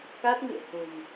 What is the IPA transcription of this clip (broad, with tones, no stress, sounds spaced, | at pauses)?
k a˦˥ t̚ ŋ ɨ̰˧˨ ə̯ h o̤˨˩ m